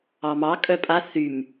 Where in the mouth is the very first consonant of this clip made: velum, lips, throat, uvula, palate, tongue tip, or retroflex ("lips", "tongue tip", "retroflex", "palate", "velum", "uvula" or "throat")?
lips